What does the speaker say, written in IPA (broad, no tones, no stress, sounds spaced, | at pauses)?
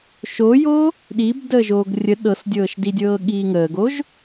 ʃ o j o | ɗ i b d əː ʒ oː ɡ rʲ ə ɗ ɤ s dʲ ɤː ʃ d i dʲ ɤː ɠ iː ŋ əː ɡ o ʒ